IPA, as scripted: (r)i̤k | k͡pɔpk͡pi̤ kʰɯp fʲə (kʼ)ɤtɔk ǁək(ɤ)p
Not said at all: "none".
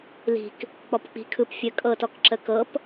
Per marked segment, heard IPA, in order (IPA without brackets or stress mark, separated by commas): l, kʼ, ɤ